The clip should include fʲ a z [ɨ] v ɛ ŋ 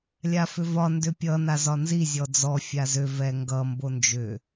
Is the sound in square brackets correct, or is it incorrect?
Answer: incorrect